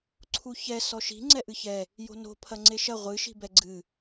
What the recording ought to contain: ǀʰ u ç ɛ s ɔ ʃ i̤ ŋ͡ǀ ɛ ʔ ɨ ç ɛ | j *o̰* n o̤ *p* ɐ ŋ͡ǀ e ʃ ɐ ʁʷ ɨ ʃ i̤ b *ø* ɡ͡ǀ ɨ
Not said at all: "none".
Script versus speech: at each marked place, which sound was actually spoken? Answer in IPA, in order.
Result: o̤, pʰ, ɛ

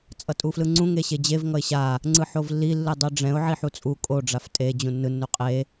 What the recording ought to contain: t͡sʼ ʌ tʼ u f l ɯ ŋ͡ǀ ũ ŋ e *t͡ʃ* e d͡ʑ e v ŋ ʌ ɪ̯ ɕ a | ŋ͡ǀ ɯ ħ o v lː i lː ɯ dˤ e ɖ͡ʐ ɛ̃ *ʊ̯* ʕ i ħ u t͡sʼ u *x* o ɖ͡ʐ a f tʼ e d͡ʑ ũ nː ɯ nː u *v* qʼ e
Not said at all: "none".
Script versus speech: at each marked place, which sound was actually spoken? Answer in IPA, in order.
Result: ɕ, ʊ̯, kʼ, none

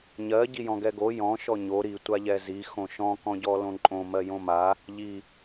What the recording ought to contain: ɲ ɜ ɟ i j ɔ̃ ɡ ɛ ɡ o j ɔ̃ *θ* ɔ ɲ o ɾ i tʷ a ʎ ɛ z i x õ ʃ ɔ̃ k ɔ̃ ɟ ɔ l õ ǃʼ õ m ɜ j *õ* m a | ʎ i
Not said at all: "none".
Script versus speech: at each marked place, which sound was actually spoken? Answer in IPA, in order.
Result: ʃ, õ

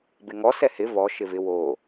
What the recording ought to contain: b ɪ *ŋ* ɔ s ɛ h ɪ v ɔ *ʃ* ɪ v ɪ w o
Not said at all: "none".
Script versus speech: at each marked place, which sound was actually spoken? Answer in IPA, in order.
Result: ŋ, ʃ

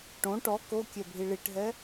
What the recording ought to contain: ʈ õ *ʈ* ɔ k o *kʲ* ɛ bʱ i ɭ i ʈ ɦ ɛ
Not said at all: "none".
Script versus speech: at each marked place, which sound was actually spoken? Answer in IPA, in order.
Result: ʈ, kʲ

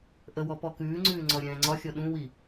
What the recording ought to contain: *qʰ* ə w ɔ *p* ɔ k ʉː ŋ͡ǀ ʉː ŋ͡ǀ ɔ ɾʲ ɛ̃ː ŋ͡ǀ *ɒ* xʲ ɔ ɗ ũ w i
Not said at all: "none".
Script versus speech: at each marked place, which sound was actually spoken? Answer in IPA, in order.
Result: ʔ, p, ɒ

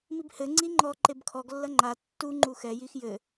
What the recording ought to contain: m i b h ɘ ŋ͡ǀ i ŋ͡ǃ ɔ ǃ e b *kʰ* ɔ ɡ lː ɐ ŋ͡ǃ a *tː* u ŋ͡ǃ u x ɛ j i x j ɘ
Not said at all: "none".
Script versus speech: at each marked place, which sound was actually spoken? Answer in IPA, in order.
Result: kʰ, tː

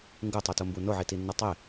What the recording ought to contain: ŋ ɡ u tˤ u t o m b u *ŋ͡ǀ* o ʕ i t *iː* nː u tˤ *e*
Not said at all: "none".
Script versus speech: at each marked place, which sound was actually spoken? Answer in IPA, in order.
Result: n, i, e

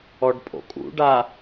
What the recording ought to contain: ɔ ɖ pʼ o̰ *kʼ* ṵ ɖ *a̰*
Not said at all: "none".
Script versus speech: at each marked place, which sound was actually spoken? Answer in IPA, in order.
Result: kʼ, a

